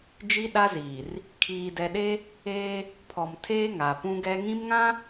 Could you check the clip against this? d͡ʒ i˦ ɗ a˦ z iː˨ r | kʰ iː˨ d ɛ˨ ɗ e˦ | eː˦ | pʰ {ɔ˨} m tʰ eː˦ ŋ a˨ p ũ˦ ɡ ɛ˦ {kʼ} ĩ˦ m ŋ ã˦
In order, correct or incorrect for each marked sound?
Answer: correct, incorrect: ŋ

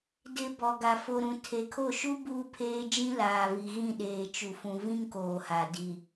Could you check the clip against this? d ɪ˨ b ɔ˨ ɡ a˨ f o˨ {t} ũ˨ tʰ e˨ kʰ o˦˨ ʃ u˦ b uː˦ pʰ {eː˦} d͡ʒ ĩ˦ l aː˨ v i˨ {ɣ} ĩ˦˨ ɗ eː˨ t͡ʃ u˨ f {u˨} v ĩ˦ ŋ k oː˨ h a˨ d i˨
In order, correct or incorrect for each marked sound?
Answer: incorrect: ɾ, correct, correct, incorrect: ũ˨

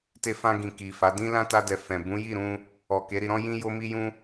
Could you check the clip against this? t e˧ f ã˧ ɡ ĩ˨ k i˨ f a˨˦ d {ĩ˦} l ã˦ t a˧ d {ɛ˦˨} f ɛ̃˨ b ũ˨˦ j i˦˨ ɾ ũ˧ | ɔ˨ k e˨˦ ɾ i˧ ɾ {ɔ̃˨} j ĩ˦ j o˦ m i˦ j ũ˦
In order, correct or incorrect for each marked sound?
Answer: correct, incorrect: ɛ˨, incorrect: ɔ̃˦

